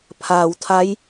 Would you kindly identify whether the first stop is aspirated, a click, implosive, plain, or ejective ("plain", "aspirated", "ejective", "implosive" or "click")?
aspirated